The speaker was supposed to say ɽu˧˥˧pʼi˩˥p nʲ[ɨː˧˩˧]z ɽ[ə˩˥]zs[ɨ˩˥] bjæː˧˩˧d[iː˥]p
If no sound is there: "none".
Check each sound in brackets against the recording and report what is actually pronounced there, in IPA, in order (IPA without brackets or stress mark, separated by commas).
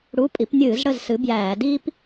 ɨː˧˩˧, ə˥˨, ɨ˩˥, iː˥